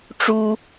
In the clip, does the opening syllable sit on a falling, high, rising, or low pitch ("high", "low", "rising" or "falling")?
high